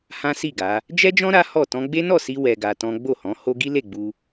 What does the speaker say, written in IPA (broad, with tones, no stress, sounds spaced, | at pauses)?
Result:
h ã˦ s i˦˨ ɡ a˨˦ | d͡ʒ ɛ˦ d͡ʒ ɔ̃˦ ɾ a˦ h ɔ˦˨ t ɔ̃˧ ɡ͡b e˦ n ɔ˦˨ s i˧ w ɛ˧ ɡ a˧ t ɔ̃˦ ɡ͡b o˦˨ h ɔ̃˨˦ h o˦ ɡ i˦ l e˦˨ ɡ͡b u˧